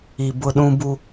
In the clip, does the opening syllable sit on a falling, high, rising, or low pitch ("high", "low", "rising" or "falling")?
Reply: low